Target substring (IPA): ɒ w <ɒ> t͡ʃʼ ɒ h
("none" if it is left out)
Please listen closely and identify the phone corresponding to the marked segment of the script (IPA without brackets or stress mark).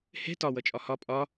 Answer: ʌ